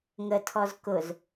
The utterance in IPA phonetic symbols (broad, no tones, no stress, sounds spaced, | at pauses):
ŋ ə tʰ ɔ z k ʊ z